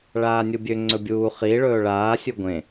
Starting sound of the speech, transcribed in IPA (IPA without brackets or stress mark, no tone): ɭ